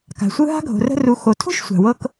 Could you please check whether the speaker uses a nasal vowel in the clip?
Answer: no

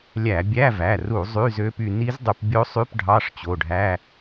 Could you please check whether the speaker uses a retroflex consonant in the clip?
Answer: yes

